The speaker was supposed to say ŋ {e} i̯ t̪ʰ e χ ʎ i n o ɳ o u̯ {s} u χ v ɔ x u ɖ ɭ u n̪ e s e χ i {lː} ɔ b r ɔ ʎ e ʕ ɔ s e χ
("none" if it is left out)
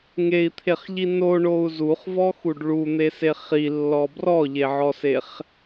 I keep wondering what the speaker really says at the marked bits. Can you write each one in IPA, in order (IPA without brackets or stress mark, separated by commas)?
e, z, lː